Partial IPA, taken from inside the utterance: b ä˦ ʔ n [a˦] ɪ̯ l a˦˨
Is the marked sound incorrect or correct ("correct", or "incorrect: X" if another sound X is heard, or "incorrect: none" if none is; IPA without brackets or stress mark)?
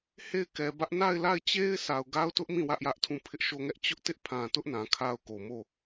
incorrect: a˦˨